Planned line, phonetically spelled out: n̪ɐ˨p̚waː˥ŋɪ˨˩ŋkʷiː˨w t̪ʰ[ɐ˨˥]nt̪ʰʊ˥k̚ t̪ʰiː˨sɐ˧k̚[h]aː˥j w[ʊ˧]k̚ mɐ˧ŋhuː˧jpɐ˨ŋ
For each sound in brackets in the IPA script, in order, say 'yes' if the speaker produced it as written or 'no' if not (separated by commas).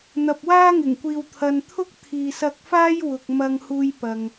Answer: no, no, no